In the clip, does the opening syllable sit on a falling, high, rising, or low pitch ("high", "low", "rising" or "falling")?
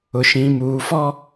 low